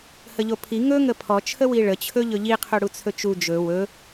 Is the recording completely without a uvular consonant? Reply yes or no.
no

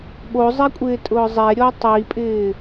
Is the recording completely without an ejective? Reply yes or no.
no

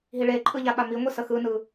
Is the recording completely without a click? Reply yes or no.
no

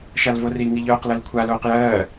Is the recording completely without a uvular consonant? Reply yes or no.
no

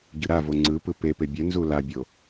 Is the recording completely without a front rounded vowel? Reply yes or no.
yes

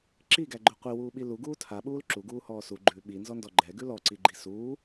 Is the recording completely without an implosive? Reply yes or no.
no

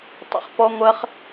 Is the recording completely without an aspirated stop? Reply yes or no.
yes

